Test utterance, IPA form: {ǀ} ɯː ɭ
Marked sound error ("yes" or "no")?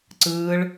no